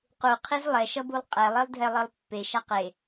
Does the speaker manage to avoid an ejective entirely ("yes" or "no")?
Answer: no